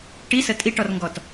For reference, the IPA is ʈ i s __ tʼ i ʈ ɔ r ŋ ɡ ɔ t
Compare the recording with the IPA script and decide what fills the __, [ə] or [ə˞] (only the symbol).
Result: ə